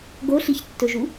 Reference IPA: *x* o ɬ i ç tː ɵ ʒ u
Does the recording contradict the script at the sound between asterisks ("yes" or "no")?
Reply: yes